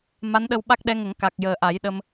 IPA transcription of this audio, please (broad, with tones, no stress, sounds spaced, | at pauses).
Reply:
m a˧˥ n ɗ ə˧ w ɓ a˦˥ k̚ ɗ ɛ˧˥ ŋ ə˨˩˦ ŋ k a˨˩ k̚ j əː˨˩ ʔ a˨˩˦ j ɗ ə˧ m